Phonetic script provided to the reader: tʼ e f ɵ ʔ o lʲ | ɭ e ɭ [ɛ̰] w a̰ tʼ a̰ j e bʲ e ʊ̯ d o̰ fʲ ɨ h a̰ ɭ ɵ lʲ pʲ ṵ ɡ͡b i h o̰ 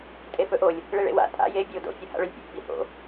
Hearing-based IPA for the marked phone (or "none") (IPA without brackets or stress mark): ḛ